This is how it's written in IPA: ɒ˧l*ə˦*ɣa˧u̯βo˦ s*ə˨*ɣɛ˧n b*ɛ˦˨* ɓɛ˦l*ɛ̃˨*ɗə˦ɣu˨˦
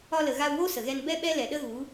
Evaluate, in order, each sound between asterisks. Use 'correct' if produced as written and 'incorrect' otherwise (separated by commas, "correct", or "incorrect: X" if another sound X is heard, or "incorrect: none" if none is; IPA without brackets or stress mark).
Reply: incorrect: ə˨, correct, incorrect: ɛ˦, incorrect: ɛ˨